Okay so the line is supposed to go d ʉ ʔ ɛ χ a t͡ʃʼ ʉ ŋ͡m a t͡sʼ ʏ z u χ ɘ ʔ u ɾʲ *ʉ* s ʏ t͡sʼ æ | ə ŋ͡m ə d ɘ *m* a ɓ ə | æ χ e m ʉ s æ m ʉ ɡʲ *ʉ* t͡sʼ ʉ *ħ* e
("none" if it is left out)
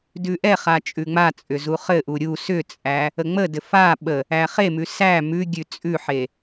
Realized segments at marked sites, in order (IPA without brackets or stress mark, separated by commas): u, f, ʉ, ħ